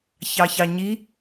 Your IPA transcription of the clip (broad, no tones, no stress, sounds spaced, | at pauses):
ç ɑ ç ɑ ɲ i